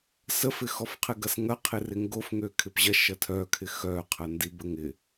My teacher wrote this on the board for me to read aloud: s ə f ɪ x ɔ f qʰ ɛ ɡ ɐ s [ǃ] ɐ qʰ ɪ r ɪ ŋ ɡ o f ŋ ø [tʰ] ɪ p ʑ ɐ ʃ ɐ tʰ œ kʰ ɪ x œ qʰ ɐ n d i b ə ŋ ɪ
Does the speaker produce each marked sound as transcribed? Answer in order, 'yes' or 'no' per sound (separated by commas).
no, no